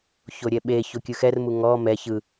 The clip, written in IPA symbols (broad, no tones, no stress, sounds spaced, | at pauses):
ç o ɾʲ ɛ ɓ e ç o kʲ ɯ x ɛ r m u ŋ ɔ m ɛ ç ɯ